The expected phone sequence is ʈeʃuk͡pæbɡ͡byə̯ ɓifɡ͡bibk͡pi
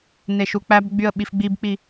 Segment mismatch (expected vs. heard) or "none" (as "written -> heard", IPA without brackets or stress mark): ʈ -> n